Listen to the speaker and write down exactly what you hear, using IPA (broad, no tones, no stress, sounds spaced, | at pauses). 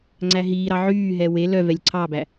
ŋ͡ǀ æ ɦ iː ɾ ɑ ʕ yː ɦ ɛ w e l œ v ɛ lʲ ǀʰ ɑ b æ